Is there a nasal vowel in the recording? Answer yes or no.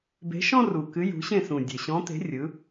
yes